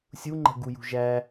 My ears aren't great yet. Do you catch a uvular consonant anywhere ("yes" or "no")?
no